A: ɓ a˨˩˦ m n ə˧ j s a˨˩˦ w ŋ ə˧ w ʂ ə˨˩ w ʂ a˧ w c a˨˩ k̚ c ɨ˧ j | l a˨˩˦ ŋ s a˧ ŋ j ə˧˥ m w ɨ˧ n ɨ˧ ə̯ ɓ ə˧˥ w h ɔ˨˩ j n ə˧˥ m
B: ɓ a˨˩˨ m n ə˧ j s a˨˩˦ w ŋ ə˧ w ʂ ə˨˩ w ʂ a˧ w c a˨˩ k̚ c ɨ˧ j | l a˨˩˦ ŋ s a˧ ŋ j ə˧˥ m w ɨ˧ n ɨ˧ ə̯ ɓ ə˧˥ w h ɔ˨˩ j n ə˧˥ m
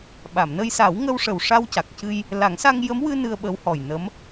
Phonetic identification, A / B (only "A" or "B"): B